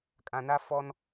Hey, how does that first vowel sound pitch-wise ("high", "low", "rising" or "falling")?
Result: low